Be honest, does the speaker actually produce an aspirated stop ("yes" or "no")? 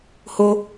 no